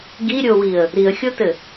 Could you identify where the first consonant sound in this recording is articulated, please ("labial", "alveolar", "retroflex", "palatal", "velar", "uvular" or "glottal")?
velar